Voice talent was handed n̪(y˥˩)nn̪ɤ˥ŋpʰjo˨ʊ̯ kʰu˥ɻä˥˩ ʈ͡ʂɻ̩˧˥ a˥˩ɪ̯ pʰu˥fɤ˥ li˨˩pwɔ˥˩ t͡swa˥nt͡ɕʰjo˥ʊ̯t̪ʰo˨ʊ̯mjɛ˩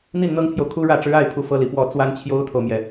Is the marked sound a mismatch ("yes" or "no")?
yes